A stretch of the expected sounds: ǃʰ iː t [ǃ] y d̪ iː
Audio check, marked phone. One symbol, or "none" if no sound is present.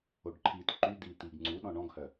ǃ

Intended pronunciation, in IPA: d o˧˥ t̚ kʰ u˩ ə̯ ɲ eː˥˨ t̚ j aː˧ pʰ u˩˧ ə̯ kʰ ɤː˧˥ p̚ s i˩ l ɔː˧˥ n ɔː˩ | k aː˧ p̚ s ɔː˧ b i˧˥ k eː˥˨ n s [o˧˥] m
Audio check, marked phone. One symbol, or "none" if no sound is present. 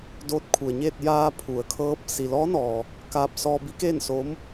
o˧˥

